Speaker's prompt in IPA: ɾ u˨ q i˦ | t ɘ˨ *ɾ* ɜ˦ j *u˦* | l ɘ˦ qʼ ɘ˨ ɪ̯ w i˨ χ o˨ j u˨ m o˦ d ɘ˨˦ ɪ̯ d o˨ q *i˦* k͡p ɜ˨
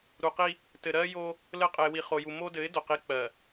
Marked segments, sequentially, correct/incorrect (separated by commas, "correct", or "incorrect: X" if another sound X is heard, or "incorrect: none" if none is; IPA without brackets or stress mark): correct, incorrect: o˦, correct